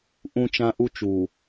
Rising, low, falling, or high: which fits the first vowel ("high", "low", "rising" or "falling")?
high